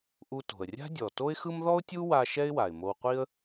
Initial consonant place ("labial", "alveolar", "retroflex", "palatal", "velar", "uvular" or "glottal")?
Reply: glottal